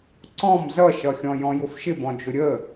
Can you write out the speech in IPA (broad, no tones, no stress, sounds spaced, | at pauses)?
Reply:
ǀ ɔ̃ m z ʌ ʃ ʌ xʲ ɔ̃ j ɔ̃ j ʊ f ʃ ɪ b ɔ̃ d͡ʒ ʊ ɾʲ ə